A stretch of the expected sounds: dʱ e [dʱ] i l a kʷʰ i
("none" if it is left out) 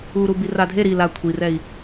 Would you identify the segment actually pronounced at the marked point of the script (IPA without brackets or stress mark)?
ɾ